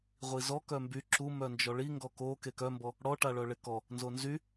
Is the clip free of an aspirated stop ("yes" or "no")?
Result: yes